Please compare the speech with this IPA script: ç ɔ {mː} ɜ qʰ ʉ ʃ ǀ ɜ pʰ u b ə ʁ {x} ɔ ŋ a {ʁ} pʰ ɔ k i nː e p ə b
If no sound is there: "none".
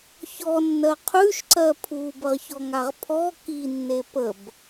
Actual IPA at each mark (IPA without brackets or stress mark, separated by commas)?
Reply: nː, ç, ʁ